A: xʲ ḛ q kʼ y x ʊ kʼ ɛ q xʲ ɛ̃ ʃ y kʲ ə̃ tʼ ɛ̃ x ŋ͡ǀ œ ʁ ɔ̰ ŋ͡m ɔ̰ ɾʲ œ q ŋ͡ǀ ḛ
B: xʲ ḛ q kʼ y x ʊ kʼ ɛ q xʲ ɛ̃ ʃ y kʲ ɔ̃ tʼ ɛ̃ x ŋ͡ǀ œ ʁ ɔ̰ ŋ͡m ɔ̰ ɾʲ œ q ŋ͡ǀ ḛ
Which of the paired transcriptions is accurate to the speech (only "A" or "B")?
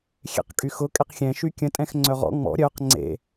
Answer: A